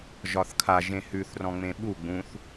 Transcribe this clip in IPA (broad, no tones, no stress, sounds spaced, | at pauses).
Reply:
ʒ ɒ θ kʰ a ʒ ẽ h ʉ θ r ɔ̃ ŋ͡m ẽ ɓ u ɡ͡b ũ θ